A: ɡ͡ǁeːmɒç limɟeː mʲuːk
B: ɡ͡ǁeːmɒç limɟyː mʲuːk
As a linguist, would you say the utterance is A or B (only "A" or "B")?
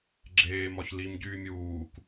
B